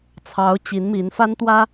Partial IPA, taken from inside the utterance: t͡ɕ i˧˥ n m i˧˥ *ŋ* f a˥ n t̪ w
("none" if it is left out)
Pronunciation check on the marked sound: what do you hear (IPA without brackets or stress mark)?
n